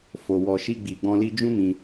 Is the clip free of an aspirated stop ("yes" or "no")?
yes